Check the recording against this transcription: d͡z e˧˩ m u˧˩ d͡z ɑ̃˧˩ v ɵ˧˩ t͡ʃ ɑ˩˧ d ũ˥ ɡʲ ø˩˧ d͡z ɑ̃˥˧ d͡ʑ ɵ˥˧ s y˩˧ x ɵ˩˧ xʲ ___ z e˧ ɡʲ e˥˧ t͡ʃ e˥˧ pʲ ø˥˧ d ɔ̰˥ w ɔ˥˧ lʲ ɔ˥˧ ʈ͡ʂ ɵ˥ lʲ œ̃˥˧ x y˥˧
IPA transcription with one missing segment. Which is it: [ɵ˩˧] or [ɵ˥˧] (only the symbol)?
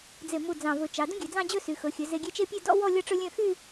ɵ˩˧